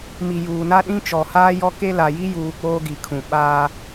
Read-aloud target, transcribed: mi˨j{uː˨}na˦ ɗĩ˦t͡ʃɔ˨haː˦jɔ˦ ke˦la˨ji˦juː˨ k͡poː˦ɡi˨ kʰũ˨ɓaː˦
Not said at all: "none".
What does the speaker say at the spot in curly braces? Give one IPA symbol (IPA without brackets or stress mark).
uː˨